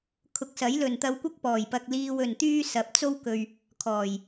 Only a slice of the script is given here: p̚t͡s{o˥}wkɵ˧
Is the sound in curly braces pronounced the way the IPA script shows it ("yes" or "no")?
yes